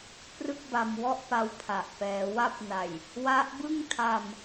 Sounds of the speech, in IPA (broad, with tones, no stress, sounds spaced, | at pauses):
p r ɯ˥˩ k̚ b a˧ m w ɔ˥˩ ʔ p a˧ w pʰ a˨˩ ʔ p ɛː˩˦ w a˦˥ p̚ n a˨˩ j | w a˦˥ ʔ b ɯ˥˩ ŋ tʰ a˧ m